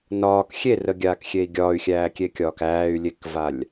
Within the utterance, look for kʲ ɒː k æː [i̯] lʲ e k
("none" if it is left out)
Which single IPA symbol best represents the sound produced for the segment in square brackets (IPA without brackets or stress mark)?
y̯